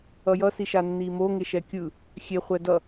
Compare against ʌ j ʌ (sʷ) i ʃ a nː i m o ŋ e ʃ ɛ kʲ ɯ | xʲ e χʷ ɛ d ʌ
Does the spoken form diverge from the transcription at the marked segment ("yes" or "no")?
yes